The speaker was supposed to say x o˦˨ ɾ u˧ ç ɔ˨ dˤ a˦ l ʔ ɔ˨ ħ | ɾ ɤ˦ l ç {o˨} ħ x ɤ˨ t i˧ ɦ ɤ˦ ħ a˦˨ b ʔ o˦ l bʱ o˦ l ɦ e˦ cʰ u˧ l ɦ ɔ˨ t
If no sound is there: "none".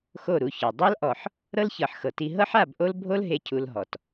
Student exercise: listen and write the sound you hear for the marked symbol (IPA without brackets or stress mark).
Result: ɤ˨